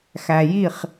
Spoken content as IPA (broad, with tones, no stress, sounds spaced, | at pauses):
x æ˨ j i˦˨ χ